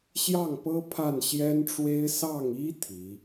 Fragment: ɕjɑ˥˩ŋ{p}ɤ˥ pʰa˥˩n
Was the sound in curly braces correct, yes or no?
yes